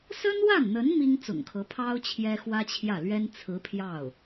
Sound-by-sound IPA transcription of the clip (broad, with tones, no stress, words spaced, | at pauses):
sə˥nwa˥˩nn̪ə˧˥n mi˥ŋ t͡sʊ̰˨˩ŋkʰɤ˧˥pʰɑ˥ʊ̯ t͡ɕʰjɛ˥xwä˥t͡ɕʰjä˥˩ lɥɛ˥n t͡sʰɹ̩˧˥pʰjɑ˥˩ʊ̯